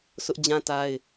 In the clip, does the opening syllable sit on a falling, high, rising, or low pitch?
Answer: high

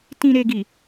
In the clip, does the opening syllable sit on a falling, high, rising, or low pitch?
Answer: low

